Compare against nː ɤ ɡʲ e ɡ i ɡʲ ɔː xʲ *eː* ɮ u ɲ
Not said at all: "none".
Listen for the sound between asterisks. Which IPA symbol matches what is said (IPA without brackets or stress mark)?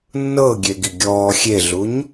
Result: e